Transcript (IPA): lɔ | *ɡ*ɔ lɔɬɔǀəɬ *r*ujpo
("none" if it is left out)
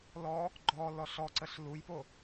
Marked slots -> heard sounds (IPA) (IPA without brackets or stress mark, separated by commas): ɡ͡ǃ, l